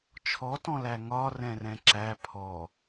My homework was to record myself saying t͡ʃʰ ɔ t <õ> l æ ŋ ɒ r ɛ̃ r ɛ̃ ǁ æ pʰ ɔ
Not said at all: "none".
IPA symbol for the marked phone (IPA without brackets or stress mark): ɔ̃